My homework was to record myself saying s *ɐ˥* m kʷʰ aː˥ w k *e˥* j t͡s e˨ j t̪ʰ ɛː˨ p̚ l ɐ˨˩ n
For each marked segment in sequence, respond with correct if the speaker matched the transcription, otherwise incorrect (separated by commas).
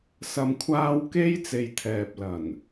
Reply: incorrect, correct